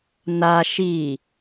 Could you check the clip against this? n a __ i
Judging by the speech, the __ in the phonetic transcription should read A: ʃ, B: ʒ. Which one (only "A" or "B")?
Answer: A